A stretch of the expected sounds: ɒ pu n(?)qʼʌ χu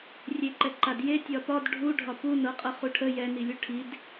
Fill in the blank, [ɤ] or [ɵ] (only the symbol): ɤ